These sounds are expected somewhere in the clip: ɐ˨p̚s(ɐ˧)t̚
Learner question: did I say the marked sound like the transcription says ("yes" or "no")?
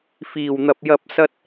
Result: yes